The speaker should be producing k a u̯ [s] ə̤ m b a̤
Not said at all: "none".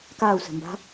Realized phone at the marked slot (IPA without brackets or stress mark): s